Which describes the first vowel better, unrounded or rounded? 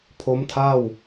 rounded